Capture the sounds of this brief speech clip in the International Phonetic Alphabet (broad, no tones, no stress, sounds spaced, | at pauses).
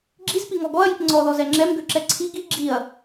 ɡ͡ǁ i z p i ŋ ɔ ɡ ɔ ɐ̯ j i p ŋ͡ǀ ɔ ð ɔ z ɛ ŋ͡ǁ ɛ m ɡ ø ǁ ɛ ǀʰ i ɡ i ɡ͡ǁ i ɐ̯